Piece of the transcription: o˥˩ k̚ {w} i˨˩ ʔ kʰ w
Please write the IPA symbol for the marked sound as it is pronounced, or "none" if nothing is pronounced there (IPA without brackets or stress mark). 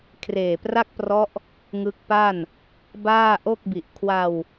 b